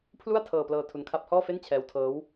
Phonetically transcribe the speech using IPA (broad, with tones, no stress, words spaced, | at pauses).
pʰlu˥˩a̯ tʰɤː˧plɤː˧ tʰu˧nkʰa˦˥p̚hɔː˥˩ fe˥˩nt͡ɕʰɛː˦˥wtʰɤː˦˥w